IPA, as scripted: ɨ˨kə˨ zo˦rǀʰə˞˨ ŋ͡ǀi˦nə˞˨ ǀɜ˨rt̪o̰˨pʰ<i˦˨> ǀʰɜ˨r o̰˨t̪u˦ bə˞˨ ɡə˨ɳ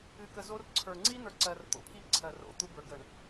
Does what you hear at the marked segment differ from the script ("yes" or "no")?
no